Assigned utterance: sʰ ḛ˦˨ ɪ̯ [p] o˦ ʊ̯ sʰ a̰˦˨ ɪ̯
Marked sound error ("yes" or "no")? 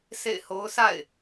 yes